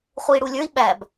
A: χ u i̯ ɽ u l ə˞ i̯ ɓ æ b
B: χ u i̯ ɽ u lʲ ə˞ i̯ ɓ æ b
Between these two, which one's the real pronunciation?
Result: B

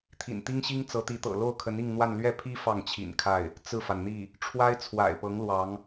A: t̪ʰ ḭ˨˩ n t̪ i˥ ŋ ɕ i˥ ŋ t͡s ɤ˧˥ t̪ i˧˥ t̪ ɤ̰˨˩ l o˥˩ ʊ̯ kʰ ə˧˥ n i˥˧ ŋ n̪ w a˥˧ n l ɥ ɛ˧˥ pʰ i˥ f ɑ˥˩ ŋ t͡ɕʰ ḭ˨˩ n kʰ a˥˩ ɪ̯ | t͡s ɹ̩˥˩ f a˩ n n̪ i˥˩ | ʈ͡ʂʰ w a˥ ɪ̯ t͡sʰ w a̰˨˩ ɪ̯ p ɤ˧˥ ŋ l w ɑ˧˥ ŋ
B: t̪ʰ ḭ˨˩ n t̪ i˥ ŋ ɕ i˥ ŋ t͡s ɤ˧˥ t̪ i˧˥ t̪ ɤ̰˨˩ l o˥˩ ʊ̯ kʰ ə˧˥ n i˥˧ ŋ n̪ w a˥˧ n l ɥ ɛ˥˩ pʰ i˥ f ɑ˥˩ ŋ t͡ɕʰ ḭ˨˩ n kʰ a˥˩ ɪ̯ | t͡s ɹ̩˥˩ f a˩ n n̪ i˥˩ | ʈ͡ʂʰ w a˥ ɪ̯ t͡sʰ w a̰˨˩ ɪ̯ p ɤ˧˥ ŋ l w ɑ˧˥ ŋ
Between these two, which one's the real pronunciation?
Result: B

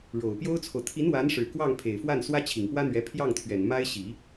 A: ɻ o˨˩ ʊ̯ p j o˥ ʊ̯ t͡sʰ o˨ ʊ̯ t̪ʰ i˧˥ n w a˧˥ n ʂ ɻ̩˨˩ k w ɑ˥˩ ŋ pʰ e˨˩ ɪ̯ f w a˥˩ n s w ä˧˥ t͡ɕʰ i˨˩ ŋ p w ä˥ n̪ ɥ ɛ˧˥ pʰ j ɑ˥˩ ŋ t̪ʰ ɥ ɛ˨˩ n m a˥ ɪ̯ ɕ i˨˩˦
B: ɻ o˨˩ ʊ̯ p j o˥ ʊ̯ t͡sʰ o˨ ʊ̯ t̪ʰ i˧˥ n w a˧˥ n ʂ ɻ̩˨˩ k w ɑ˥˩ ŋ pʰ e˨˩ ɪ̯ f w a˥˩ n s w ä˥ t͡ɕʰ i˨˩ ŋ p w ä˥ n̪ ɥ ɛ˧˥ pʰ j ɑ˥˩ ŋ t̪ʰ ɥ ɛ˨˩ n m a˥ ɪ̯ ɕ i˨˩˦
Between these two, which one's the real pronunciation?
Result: B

